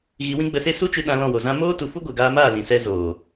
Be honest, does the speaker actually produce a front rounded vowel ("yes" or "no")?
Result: no